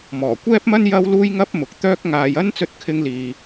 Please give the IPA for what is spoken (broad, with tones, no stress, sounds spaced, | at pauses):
m ɔː˨˩ kʷ ɛː˥ p̚ m ɐ˥ n j ɐ˥ w l uː˥ j ŋ ɐ˥ p̚ m ʊ˨ k̚ t̪ œː˥ k̚ ŋ aː˧ j ɐ˥ n t͡s ɵ˥ t̚ kʰ ɪ˥ ŋ l iː˧